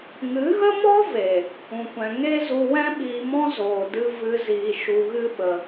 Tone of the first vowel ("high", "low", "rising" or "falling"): rising